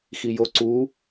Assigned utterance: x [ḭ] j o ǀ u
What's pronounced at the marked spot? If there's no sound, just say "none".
i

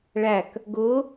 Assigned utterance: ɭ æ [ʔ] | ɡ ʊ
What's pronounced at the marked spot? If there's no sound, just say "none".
k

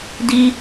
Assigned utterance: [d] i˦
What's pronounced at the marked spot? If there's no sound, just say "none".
d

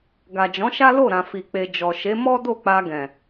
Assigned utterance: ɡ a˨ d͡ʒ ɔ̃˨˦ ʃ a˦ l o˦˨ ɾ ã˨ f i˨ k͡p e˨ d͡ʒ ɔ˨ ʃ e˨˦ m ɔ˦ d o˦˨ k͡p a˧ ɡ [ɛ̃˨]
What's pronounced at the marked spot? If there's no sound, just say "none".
ɛ̃˨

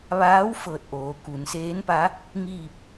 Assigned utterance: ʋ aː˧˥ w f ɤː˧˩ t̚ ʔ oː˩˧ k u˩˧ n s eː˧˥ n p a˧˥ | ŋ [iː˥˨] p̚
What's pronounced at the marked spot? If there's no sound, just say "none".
iː˥˨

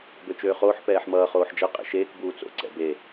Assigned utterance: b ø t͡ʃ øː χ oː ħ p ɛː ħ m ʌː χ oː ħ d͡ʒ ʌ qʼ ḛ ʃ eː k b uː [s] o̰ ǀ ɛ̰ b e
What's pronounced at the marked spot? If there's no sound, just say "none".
t͡s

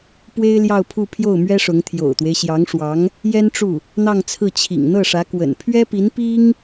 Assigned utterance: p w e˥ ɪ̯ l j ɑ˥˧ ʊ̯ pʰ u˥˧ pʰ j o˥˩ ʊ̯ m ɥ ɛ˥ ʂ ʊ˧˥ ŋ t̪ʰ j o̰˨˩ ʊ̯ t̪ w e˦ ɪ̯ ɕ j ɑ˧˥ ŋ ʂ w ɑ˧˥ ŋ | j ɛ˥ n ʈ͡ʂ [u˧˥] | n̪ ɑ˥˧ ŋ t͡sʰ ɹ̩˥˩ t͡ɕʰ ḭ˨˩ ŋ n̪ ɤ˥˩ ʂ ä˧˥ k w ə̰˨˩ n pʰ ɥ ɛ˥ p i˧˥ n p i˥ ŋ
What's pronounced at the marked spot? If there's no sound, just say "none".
u˥˩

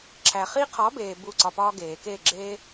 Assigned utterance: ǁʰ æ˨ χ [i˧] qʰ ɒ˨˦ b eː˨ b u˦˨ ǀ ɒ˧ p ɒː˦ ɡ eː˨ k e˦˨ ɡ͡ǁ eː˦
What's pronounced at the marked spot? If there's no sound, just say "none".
i˧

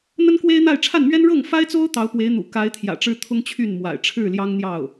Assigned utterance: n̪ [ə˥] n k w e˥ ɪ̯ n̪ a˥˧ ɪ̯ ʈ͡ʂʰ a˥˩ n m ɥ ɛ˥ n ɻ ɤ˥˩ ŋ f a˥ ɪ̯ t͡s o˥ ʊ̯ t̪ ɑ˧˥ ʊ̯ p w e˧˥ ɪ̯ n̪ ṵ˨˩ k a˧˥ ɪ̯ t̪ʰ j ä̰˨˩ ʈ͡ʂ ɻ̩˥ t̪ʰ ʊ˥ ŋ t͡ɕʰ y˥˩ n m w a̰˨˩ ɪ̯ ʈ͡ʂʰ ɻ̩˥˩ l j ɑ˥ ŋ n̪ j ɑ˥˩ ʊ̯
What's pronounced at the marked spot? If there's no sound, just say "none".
ə˥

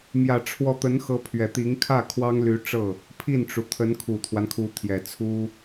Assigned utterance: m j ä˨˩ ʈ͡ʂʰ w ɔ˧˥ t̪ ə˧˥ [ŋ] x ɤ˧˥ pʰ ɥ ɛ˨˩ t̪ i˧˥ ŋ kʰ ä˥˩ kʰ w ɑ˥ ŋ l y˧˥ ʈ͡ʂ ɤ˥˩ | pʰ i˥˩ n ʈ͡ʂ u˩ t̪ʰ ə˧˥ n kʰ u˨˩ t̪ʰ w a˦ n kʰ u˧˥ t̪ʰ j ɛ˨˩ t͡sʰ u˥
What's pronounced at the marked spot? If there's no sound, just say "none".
n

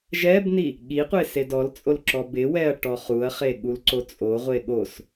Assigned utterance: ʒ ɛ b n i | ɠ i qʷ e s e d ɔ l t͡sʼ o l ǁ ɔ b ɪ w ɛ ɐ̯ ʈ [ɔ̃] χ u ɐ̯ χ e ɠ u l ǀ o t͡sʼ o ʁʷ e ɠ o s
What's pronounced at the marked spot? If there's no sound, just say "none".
ɔ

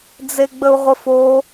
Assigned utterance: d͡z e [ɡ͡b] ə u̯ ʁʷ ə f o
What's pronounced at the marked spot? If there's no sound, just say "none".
ɡ͡b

